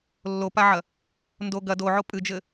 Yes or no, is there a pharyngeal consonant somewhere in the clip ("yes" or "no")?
yes